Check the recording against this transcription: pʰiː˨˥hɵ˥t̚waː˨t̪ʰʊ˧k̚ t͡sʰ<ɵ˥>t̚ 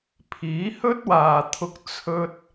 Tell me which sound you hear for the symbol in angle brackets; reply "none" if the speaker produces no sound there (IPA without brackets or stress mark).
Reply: ɵ˧